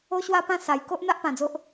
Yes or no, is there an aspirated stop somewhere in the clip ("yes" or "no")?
no